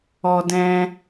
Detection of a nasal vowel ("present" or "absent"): present